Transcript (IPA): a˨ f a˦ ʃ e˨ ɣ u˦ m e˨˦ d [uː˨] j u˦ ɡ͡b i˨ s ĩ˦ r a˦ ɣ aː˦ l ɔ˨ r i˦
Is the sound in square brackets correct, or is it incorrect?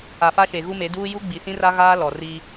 incorrect